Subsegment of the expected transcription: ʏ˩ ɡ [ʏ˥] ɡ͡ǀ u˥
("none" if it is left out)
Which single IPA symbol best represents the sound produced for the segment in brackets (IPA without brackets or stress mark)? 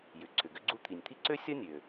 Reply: ʏ˥